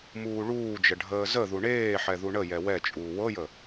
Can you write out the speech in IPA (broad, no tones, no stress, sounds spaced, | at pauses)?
m uː ɭ uː d͡ʒ ə ɖʱ əː z ə ð u ɳ eː ħ ɛ ð u ɳ ə j ɛ w ɛ t͡ʃʼ uː w ɤ j ə